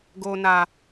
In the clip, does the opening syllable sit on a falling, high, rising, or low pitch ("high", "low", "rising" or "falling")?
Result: low